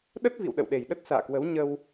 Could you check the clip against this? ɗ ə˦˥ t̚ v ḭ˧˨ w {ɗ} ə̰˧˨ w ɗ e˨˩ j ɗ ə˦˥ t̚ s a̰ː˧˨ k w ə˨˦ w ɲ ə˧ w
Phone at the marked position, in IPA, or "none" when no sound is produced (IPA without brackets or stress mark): ɗ